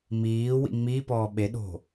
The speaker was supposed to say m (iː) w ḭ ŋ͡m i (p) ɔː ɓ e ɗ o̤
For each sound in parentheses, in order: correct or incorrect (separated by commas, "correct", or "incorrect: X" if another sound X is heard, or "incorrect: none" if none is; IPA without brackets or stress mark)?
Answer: correct, correct